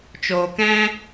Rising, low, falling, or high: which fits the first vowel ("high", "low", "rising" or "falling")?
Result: low